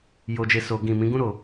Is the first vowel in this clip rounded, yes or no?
yes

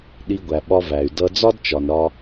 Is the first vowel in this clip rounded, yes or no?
no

